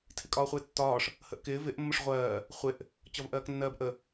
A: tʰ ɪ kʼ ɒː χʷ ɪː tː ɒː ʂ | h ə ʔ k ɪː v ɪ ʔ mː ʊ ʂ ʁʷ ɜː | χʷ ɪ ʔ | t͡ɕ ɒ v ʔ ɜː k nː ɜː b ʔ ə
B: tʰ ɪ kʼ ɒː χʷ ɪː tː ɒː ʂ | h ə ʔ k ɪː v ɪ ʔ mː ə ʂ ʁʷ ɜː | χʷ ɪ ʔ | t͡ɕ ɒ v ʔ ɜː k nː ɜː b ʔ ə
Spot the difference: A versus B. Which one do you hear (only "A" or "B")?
A